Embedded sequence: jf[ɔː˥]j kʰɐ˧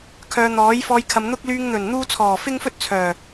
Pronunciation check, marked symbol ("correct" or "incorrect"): incorrect